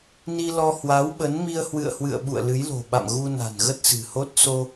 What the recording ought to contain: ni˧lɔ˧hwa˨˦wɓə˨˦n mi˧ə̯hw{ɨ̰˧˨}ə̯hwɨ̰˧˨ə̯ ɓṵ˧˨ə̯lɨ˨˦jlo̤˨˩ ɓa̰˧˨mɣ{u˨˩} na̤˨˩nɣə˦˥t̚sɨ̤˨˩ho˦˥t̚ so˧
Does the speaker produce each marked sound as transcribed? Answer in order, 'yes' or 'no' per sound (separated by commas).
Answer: yes, no